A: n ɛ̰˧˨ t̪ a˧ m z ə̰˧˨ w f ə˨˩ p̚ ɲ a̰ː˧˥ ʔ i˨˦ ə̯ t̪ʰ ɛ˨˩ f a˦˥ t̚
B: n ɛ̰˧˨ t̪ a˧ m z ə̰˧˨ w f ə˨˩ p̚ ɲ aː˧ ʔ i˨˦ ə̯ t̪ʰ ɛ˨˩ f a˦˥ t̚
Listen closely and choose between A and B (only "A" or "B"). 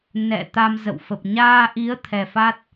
B